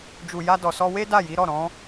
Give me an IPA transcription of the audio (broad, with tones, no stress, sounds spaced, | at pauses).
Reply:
d͡ʒ u˨ j a˧ d ɔ˨ s ɔ˧ w e˦ d a˦˨ j i˨˦ ɾ ɔ˦˨ ɾ ɔ̃˨˦